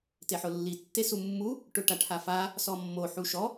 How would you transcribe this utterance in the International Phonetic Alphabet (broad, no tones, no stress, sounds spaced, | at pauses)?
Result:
t e ħ ʊ lː i tː e s u mː u | ʈ ʊ ʈ a ʈʰ a f a | s ɔ mː o ħ u ʃ ɔ